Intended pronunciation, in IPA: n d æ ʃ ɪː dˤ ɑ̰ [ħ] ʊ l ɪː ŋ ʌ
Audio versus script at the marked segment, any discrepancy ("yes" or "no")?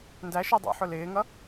no